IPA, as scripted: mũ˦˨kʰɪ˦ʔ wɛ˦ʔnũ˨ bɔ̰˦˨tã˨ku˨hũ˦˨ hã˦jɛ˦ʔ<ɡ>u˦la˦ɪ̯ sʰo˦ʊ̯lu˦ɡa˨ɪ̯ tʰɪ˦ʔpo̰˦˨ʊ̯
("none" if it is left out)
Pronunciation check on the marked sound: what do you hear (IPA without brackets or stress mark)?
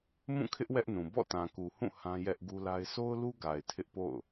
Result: ɡ